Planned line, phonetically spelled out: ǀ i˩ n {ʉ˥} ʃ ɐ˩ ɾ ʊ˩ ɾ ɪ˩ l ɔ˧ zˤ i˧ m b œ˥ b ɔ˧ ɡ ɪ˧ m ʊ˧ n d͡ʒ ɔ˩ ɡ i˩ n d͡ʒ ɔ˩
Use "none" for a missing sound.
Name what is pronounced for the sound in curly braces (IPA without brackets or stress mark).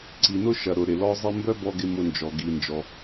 ʊ˥